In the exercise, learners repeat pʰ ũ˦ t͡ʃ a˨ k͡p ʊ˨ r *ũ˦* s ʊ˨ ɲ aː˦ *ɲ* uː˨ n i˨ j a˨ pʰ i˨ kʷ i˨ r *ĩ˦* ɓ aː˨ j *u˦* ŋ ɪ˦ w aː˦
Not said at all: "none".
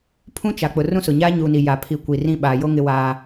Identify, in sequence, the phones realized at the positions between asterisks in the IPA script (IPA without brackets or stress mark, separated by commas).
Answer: ũ˦, ɲ, ĩ˦, o˦